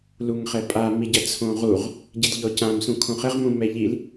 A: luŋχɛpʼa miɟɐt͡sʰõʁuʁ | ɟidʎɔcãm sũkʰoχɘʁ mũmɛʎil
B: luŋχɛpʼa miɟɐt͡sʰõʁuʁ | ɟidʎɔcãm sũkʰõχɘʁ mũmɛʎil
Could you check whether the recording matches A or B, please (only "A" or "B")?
B